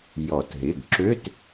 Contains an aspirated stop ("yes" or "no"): no